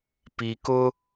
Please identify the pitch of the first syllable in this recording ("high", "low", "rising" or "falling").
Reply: low